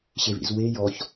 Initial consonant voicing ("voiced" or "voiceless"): voiceless